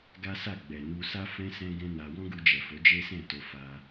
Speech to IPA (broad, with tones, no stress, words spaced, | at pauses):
ɡa˦sa˦˨ ɡ͡bɛ˨nu˧sa˦ fɛ̃˦ sɛ̃˦ɡɛ̃˦ na˧ wɔ̃˦ɡu˧d͡ʒɛ˨fo˨˦ d͡ʒe˦sɛ̃˦˨to˧ fa˦